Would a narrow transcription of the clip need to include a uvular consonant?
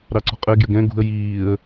yes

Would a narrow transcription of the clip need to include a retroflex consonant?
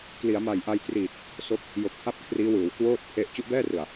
no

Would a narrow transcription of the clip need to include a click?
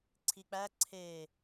yes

